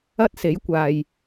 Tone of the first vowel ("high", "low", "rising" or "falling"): high